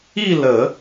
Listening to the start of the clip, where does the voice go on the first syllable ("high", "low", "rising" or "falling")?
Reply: falling